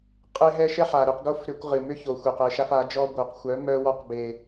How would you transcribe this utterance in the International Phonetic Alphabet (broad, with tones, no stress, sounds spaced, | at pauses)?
qʼ e˦ ɦ ɛ˦ ʃ ɛ˦ ħ a˨ ɾ ʏ˧ q ɡ o˦ f ɾ ʏ˧ kʷ ʁ ɨ˨ m ʏ˦ ç o˨ xʷ ɛ˨ q ɛ˧ ʃ a˦ f a˨˦ d͡ʒ ɔ˦ ɡʷ œ˨ q xʷ œ˨˦ m œ˧ w ɔ˧ q b e˨